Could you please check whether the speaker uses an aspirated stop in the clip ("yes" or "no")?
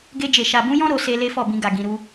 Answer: no